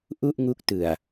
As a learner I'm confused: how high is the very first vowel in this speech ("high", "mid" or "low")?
high